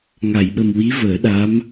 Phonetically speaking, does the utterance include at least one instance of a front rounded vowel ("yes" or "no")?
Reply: no